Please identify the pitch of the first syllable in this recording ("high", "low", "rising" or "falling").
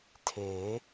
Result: rising